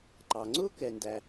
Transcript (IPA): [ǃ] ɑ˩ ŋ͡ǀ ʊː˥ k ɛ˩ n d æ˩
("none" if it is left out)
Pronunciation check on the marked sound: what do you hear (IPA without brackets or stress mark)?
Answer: ǃ